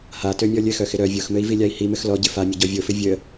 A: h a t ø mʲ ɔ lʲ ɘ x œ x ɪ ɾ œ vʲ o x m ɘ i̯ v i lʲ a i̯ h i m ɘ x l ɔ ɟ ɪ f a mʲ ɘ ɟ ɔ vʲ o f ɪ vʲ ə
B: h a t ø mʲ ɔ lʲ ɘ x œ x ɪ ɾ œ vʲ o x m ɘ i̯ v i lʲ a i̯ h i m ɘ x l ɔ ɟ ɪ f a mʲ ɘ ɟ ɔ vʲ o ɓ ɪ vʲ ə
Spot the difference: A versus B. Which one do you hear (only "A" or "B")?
A